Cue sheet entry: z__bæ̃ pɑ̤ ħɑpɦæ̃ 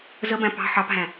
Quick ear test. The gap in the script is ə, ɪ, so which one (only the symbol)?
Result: ə